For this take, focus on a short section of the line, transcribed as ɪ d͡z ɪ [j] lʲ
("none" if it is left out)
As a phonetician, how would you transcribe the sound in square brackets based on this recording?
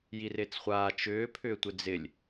none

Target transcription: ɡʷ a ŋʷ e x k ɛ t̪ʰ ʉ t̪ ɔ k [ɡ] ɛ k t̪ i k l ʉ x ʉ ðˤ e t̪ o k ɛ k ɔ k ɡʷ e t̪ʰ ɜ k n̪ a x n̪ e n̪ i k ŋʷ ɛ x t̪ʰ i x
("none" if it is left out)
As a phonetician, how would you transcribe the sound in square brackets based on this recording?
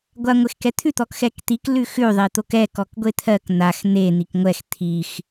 x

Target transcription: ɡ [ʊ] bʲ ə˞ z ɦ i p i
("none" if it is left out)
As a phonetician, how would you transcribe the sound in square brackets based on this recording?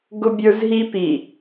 ʊ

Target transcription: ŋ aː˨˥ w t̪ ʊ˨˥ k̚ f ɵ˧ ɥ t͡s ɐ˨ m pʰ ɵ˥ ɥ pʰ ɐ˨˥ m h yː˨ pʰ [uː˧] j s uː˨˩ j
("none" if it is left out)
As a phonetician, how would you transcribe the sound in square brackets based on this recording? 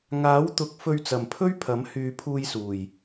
uː˧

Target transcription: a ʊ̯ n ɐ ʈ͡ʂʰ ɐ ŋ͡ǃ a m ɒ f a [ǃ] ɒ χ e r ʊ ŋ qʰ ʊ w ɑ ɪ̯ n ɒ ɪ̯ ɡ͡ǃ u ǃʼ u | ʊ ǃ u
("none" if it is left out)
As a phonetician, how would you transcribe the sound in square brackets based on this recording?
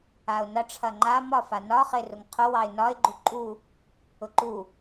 n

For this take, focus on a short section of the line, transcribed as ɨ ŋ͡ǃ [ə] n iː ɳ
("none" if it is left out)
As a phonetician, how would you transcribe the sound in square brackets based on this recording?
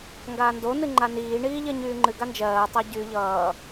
a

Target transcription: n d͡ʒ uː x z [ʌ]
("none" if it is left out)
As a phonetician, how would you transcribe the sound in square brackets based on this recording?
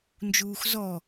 ɔ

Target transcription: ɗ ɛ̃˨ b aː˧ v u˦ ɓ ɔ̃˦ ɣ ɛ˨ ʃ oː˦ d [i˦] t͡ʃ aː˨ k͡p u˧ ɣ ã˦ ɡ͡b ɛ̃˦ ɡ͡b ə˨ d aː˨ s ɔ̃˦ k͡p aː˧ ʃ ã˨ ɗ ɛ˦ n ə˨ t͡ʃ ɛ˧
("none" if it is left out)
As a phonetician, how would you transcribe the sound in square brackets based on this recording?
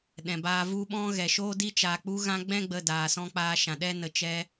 i˦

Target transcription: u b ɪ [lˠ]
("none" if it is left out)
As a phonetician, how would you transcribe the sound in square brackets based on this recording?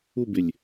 lʲ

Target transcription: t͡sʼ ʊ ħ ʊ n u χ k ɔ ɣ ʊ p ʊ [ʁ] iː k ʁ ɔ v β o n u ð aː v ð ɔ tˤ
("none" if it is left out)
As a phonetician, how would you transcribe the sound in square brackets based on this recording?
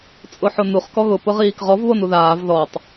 ʁ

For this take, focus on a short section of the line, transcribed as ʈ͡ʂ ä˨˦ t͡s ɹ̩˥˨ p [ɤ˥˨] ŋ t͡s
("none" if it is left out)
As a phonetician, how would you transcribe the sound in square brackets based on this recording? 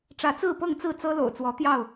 ɤ˥˨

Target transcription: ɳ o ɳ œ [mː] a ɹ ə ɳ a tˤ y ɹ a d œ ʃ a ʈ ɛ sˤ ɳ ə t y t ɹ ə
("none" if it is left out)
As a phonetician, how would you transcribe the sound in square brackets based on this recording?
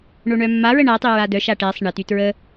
mː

